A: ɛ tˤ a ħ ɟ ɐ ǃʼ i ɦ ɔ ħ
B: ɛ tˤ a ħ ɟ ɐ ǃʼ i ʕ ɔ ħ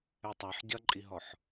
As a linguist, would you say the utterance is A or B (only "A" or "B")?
A